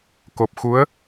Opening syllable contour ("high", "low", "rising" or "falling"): low